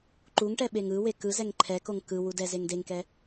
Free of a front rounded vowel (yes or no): yes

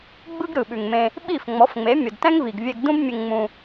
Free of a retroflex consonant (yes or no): yes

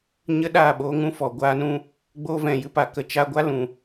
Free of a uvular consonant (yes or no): yes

